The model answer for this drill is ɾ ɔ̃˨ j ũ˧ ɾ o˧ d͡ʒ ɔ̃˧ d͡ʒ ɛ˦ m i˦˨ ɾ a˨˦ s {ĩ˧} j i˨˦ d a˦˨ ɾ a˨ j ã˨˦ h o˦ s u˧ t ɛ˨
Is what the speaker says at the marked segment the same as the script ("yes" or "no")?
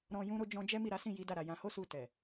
no